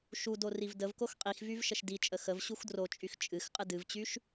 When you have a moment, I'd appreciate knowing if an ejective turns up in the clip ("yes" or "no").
yes